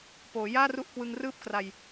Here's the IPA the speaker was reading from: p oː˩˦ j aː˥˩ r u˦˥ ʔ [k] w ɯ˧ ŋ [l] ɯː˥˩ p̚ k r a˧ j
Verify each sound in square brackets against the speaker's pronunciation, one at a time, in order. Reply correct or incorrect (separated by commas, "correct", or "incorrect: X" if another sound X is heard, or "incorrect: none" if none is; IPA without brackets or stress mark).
correct, incorrect: r